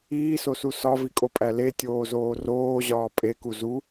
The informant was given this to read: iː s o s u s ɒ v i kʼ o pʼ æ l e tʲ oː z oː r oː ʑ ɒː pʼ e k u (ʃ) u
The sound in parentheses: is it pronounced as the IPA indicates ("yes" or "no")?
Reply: no